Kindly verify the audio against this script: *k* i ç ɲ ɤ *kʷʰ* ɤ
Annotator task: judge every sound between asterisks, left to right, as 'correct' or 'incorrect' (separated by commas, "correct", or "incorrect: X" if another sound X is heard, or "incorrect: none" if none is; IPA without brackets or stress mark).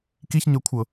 correct, correct